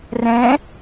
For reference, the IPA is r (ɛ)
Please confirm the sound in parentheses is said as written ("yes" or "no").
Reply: no